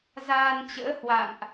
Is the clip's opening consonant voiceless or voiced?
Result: voiced